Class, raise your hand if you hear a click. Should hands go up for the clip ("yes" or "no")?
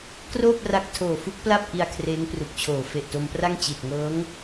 no